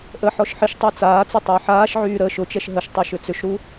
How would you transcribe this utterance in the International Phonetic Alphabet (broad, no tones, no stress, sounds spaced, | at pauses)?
ʔ ə ħ ɔ ʃ ħ ɪ ʃ tˤ a t͡s aː t͡s ʊ tˤ əː ħ aː ʃ ʕ yː ɾ əː ʃ ʊ t͡ʃ ɛ ʃ ɦ ə ʃ tˤ y ʃ ʏ t͡s ʏ ʃ ɾ u